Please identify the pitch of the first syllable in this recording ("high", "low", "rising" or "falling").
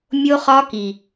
high